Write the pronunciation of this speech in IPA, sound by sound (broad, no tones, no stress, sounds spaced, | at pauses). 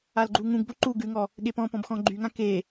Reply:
a l ɡ͡ǃ u ŋ ũ ɡ b o ǃ u ɡ ʉ ŋ ɔ | ɠ e p ɔ̃ p ɔ̃ b x ɔ̃ ɡ͡ǃ y ŋ ã k e